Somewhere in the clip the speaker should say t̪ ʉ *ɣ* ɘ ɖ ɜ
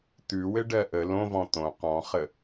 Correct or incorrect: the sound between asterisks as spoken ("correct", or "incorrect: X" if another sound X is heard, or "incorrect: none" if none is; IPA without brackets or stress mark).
incorrect: w